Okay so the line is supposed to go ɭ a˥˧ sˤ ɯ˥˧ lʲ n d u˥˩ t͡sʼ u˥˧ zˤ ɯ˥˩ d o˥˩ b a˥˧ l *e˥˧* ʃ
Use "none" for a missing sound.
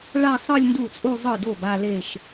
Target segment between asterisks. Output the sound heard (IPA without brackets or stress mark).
e˥˧